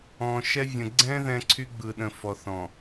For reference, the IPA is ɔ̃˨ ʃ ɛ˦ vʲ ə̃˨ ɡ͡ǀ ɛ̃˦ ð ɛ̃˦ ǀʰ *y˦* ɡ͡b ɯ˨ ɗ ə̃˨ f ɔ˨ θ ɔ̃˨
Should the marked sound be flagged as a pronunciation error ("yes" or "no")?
no